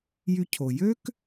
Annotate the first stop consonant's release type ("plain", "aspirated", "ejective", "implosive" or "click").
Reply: aspirated